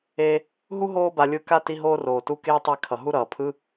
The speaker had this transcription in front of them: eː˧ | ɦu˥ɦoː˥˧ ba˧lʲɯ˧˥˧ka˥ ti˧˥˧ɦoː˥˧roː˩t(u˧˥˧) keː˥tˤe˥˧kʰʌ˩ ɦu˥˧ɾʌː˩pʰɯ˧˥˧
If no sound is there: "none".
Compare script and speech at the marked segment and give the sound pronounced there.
u˧˥˧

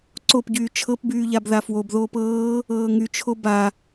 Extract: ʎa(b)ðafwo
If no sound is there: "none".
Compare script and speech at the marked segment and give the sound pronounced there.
b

